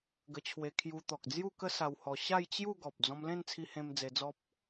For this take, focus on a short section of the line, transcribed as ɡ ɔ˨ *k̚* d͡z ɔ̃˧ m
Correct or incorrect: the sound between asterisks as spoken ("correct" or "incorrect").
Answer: incorrect